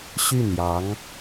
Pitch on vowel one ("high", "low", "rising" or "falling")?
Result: falling